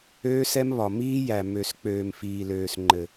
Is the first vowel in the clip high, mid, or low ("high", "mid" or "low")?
mid